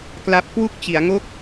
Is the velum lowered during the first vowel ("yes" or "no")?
no